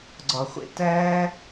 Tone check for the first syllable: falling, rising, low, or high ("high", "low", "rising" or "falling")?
low